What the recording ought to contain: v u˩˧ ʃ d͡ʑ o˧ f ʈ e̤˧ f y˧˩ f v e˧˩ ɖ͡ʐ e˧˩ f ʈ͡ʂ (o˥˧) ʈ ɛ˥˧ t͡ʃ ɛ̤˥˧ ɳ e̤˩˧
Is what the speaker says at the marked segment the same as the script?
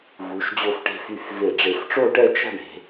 yes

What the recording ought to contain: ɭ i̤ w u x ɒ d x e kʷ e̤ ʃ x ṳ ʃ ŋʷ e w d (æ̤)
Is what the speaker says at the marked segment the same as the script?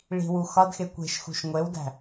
yes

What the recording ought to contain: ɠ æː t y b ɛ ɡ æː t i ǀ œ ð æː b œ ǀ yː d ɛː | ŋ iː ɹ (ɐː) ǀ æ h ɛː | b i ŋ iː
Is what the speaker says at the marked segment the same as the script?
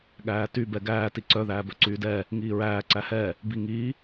no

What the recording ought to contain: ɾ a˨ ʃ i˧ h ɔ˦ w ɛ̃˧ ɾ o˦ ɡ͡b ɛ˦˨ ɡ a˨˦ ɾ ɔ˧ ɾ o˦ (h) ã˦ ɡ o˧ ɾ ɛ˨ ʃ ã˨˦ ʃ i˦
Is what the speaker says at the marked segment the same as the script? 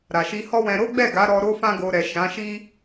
no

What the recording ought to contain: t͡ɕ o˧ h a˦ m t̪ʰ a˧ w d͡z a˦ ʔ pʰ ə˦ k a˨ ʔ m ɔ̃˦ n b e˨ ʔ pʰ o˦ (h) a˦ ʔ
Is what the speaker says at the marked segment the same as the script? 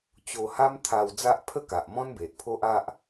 no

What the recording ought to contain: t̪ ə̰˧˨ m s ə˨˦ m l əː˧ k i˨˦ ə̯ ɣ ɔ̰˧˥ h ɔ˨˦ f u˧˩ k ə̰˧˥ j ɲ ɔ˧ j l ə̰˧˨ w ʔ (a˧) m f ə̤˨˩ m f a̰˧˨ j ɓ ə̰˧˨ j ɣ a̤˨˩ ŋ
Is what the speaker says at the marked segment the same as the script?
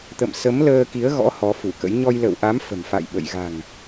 no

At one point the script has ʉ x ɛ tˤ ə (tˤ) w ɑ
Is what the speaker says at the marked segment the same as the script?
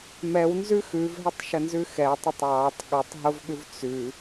yes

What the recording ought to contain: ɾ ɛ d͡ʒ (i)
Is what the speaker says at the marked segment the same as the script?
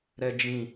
no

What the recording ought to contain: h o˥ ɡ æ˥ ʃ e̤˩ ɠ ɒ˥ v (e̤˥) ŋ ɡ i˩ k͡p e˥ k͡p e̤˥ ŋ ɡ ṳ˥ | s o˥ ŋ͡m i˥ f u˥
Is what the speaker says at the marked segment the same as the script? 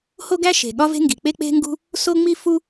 yes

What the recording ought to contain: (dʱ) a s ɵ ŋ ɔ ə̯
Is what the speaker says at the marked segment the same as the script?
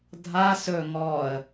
yes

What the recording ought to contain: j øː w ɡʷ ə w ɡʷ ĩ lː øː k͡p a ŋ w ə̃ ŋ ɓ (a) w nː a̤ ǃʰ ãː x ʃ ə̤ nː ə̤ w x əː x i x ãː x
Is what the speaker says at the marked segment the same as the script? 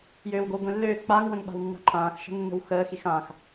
no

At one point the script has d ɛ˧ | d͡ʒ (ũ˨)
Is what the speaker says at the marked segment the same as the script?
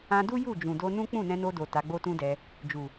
no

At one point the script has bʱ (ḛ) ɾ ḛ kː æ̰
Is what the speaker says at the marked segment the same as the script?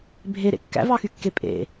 no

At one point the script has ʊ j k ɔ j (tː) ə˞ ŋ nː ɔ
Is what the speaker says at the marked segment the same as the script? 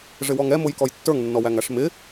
yes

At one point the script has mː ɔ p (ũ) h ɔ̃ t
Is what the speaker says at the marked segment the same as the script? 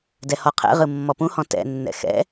yes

